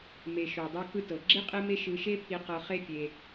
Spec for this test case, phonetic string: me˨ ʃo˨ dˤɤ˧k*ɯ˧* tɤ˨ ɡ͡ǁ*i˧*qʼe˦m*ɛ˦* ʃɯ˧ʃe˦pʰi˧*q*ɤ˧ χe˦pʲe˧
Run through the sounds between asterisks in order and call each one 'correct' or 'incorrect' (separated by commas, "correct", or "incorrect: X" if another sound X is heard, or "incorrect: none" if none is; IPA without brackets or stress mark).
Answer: correct, incorrect: i˦, incorrect: e˦, correct